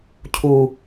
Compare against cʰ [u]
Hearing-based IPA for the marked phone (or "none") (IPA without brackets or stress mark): u